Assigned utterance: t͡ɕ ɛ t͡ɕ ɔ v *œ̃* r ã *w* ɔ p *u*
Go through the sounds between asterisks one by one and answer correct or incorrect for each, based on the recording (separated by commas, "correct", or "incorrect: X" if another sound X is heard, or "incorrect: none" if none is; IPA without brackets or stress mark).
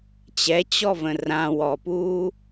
incorrect: ə̃, correct, incorrect: uː